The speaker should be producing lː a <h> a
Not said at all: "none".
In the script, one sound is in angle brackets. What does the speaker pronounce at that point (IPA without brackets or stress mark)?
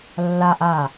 ʔ